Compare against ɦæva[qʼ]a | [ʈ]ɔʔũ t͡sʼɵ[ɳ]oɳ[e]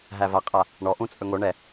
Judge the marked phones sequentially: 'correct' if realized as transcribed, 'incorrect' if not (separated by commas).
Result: correct, incorrect, incorrect, incorrect